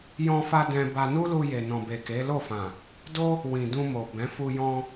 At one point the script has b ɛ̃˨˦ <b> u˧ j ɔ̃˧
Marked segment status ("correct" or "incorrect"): incorrect